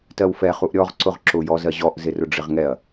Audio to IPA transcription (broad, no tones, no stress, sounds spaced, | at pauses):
t ɜ w f ɛ χ u ʔ ɾʲ ɔ ʁ ǀ ʊ ʁ ǁ ʊ j ɔ z ɜ ʑ ɔ ʔ z ɪ r ʊ ɖ͡ʐ ɪ ʁ ŋ ɛ ɐ̯